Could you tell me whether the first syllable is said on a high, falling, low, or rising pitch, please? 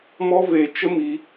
high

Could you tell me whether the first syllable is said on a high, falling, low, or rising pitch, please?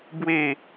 falling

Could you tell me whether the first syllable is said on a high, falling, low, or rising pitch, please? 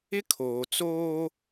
high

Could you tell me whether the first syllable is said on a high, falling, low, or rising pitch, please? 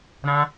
high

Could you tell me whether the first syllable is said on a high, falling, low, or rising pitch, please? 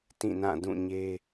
falling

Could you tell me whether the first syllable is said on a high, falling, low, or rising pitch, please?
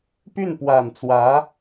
falling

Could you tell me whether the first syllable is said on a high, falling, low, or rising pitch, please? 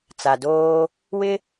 low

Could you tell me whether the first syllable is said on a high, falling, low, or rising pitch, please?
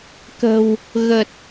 low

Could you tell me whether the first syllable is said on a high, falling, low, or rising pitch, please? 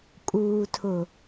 low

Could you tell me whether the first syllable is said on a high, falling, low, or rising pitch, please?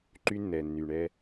high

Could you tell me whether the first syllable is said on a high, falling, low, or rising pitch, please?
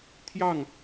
falling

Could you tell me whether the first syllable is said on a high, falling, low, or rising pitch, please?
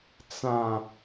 low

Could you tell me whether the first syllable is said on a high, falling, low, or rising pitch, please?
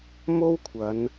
high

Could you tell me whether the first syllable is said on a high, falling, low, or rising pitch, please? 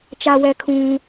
low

